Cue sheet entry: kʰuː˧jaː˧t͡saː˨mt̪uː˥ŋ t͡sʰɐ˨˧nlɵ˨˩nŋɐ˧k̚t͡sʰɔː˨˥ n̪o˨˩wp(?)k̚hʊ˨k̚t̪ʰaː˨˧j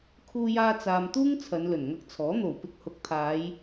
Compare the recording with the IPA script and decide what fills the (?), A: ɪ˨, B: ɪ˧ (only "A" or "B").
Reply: B